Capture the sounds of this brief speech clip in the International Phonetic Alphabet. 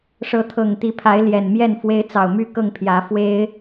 ʂɤ˨˦t̪ʰɤ˨˩ŋt̪i˨˦pʰa˨˦ɪ̯ ljɛ˨˩nmjɛ˥˨nfwe˦ɪ̯ t͡sɑ˨˩ʊ̯my˥˨kɤ˥˨ŋpʰjä˨˦ fwe˦ɪ̯

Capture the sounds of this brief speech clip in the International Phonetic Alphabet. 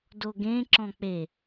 doɡẽ ǁɔ̃k͡pe

